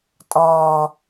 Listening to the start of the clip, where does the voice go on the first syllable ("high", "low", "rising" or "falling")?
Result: low